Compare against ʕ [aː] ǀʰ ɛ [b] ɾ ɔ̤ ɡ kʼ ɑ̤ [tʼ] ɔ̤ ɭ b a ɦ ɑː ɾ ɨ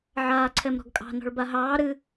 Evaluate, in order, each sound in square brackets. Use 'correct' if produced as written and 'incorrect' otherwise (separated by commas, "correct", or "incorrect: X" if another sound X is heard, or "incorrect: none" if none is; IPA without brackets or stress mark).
correct, incorrect: m, incorrect: n